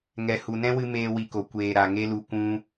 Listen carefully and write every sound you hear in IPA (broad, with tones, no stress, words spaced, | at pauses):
ŋɛ˨ hu˨nɛ̃˦wɨ˧ meː˧wi˨ko˨ kʷeː˨ ɾa˨ŋe˦lu˧ kʷũ˦